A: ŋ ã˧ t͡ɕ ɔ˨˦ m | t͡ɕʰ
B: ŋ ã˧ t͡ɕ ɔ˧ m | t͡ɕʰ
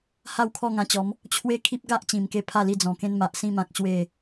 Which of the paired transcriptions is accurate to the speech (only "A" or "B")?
A